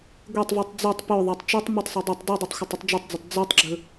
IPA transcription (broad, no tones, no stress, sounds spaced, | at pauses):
ɡʷ e tˤ v ʉ tˤ d͡z u tˤ p ɵ ðˤ a tˤ t͡ʃ ɨ tˤ m ʉ tˤ sˤ e dˤ ɐ tˤ d ɨ dˤ ɵ tˤ xʷ ɐ tˤ ɨ tˤ d͡ʒ ɵ tˤ d͡z ɐ tˤ d͡z u tˤ ɡ͡ǁ ɵ